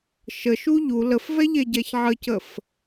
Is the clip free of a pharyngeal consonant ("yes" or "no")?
no